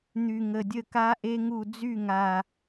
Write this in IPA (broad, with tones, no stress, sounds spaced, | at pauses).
n̪ y˨˩ ŋ ə˨˩ dʲ ə˦˨ k a˦˥ ʔ e˦˥ ŋ u˦˨ d͡z y˦˨ ŋ a˨˩